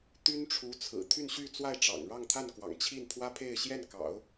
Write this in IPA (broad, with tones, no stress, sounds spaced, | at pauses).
t̪ y˥ n ʈ͡ʂʰ u˧˥ t͡sʰ ɹ̩˨˩ t̪ʰ y˥˧ n ɕ y˥˧ t͡s w a˥˩ ɪ̯ ʈ͡ʂ ɑ̰˨˩ ŋ ɻ ɑ˥˧ ŋ t̪ʰ a˥˩ n k w ɑ̰˨˩ ŋ t͡ɕʰ i˥˩ n pʰ w ä˥ pʰ e˥˧ ɪ̯ ɕ j ɛ˥˩ n k ɑ̰˨˩˦ ʊ̯